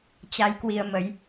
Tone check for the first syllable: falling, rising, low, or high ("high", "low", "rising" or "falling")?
rising